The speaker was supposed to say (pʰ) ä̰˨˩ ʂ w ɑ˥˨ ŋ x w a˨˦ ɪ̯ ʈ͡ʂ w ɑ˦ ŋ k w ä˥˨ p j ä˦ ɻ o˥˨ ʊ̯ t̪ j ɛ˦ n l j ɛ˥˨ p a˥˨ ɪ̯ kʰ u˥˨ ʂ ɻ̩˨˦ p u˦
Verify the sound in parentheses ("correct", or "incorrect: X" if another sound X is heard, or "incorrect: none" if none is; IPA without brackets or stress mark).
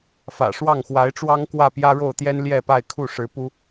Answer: incorrect: f